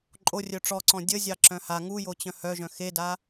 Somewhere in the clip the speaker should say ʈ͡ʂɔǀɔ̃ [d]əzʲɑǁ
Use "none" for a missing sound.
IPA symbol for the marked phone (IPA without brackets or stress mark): dʲ